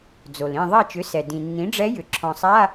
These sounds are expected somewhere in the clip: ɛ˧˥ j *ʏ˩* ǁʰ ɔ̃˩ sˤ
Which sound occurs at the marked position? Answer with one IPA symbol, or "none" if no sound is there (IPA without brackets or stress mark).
ʏ˩